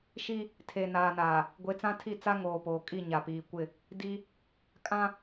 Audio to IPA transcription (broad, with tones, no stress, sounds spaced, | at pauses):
ʃ i˦ | tʰ e˨ n aː˨ n aː˨ | ɡʷ e˨˦ t͡s ã˦ tʰ i˦˨ t͡s a˦ ŋ oː˨ p oː˨ kʼ i˦˨ ɲ a˨ p iː˨ kʷ ɪ˦˨ | d i˦ | kʼ ã˦